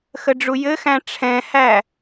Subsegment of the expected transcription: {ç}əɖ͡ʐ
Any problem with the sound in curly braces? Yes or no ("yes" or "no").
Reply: yes